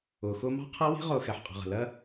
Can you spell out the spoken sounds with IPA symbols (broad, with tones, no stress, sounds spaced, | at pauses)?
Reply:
ʊː˨ x ʊː˦ m ɑ̤˦ qʰ ɜ˦ w i̤˦ ʁ ʊː˧ x ɛ˨ ħ qʼ ə̤˨ ʁ ə̤˨ l ɜ˦